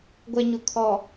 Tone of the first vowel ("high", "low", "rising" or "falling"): low